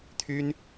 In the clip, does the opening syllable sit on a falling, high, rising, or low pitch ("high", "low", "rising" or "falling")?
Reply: high